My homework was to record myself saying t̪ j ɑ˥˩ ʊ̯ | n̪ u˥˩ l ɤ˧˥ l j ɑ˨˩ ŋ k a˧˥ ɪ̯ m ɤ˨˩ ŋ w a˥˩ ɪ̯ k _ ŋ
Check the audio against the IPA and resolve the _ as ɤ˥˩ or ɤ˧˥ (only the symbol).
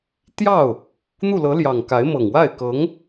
ɤ˧˥